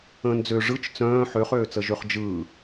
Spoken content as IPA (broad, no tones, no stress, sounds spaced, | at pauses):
ə̃ː n d͡z ø ʐ ɯ t͡ʃ t͡s œ̃ː ħ ø χ øː t͡s ə ʒ ø χ d͡ʒ ɯː